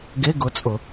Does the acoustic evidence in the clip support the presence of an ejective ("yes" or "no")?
yes